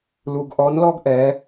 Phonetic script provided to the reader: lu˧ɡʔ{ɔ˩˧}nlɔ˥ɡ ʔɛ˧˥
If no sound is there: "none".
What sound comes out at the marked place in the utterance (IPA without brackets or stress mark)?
ɔ˧˥